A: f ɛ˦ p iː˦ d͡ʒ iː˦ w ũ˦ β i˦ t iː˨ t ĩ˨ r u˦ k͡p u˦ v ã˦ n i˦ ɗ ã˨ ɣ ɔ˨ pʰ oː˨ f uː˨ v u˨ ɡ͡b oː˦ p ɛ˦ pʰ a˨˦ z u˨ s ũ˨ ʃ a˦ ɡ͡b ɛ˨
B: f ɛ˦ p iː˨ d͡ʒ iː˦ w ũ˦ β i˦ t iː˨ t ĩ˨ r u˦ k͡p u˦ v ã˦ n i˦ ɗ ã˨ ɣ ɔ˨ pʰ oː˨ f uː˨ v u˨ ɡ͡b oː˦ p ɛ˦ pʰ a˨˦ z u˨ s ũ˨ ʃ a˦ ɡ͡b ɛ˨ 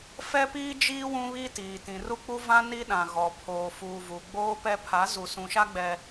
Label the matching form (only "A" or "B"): A